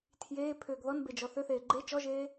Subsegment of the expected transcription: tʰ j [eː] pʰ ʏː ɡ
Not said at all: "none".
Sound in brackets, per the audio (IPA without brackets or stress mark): eː